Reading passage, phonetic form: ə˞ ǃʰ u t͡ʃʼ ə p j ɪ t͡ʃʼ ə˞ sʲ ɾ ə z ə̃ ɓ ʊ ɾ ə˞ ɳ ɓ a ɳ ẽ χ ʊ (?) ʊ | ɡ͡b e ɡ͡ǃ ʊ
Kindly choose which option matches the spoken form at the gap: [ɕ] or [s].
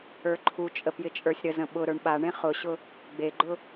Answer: ɕ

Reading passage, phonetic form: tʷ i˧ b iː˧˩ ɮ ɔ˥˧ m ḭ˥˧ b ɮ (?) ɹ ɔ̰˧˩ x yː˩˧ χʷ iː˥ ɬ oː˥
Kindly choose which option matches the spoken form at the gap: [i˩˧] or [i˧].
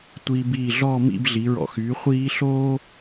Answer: i˩˧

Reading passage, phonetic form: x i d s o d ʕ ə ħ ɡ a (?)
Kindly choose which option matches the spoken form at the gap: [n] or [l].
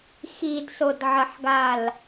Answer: l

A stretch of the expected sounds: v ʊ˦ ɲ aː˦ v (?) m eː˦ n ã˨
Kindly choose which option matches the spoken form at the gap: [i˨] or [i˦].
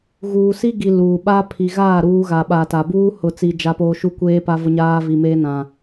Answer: i˨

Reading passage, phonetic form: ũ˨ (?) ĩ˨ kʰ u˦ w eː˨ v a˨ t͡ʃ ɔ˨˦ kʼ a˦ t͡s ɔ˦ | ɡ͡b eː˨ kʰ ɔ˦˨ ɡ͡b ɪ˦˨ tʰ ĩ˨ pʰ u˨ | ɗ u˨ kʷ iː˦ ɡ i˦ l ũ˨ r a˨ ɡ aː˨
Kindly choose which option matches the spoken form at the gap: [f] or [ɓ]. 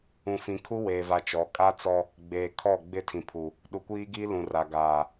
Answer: f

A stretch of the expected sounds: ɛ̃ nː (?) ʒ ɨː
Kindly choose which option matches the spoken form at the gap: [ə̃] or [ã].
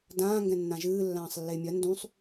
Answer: ã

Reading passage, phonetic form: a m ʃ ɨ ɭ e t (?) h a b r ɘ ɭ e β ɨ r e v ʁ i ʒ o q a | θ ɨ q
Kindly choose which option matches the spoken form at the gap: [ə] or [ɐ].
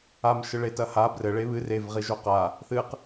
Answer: ɐ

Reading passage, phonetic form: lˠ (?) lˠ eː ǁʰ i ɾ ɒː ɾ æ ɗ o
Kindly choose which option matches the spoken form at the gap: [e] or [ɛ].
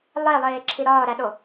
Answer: e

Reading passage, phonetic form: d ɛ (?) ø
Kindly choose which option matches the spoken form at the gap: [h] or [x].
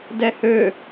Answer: h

